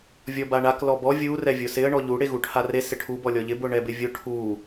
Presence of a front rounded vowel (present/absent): absent